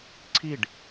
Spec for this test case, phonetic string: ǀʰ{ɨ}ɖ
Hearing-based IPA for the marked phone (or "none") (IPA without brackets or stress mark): i